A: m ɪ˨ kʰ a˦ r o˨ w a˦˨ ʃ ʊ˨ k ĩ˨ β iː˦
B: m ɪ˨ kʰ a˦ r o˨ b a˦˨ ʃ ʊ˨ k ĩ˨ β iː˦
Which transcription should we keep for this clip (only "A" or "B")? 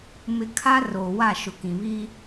A